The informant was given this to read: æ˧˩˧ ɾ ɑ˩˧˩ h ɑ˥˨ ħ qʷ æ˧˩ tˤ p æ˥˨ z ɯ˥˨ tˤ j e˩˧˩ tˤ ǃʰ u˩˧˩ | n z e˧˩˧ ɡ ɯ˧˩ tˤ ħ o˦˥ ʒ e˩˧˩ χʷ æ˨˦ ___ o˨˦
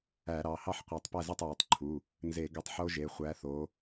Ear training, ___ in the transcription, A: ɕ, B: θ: B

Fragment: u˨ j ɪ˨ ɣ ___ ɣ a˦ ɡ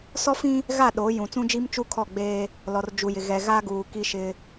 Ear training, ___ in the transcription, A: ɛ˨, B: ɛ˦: A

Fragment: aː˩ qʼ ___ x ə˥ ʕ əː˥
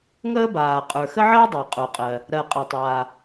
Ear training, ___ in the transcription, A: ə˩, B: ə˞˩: B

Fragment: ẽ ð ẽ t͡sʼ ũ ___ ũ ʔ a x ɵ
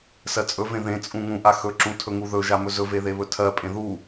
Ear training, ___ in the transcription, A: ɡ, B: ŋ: B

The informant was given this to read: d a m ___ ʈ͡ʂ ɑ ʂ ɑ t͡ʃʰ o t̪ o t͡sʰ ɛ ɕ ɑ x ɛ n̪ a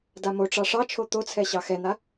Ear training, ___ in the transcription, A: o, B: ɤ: A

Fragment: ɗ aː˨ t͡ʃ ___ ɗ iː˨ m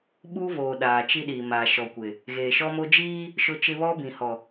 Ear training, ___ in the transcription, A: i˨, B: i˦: B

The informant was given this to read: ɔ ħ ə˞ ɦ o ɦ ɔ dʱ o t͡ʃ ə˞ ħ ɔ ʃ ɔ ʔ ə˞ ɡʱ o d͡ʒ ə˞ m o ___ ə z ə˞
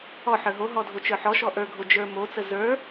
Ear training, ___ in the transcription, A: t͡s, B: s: A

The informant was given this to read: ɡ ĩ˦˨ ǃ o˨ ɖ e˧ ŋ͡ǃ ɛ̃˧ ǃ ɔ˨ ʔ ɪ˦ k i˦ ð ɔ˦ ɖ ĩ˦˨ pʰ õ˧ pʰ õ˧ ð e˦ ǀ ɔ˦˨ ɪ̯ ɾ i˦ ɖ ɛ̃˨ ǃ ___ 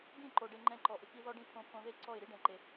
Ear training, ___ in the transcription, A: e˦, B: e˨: B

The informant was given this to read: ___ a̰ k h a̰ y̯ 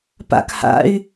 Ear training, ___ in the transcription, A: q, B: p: B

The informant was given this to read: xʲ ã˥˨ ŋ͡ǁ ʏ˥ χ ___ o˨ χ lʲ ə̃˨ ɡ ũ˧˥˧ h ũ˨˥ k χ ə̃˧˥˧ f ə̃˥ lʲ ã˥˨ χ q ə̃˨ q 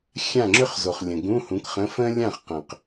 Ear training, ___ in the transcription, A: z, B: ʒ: A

